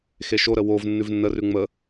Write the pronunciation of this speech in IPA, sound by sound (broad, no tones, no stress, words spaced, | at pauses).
xeʃoɾə wov nːʉvnːərʉ ŋ͡mə